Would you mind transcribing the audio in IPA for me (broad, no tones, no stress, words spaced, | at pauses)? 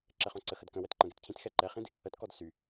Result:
ǁɛχɔ̃ǀəxəd kə̃ wɛtǃə̃ɡɛtcʰĩt xɛǃɛχĩd | ətkɔd sy